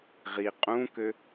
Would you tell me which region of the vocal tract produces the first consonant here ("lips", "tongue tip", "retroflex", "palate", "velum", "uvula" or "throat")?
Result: uvula